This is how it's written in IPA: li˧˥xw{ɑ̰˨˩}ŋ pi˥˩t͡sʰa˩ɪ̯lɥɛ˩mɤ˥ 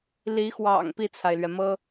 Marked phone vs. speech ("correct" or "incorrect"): correct